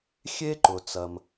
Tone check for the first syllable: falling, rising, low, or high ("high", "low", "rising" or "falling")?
high